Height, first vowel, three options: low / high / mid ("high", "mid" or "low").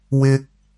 high